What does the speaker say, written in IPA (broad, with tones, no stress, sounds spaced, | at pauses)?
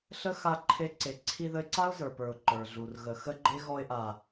ɬ ə˦ x a˧ ǃʰ e˧ ǀ e˨ ǀʰ i˧ ð ə˧ ɪ̯ ǀ a˦ ʊ̯ z ə˞˨ p ə˞˨ ʊ̯ ǃ ə˞˨ ɮ u˨ r ɣ ə˨ x ə˦ ɡ͡ǃ e˦ ɣ ɔ˧ ɪ̯ ʔ a˨